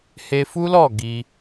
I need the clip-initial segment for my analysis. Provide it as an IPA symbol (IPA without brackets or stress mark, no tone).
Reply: h